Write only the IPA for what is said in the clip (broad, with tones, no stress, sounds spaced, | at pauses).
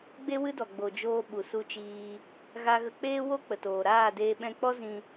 ɡ͡b e˦ w ɨ˦ d ɔ˨ ɡ͡b o˨ d͡ʒ oː˧ ɓ u˨ s u˧ t͡ʃ iː˧ | ɣ a˧ ɣ ə˧ k͡p eː˦ w o˦ k͡p ə˨ t oː˨ ɾ aː˦˨ d eː˧ ɓ ɛ̃˧ k͡p ɔ˦ z ĩ˧